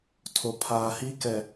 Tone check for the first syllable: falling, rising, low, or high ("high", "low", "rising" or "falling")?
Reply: low